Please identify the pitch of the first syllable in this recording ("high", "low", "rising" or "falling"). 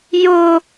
high